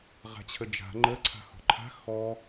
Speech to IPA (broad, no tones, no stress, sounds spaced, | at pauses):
ʁ a̤ t͡ɕʰ ə d͡ʒ a̤ ŋ͡ǃ ə ǀʰ a̤ h ɔ̤ ǃʰ a̤ x ɔ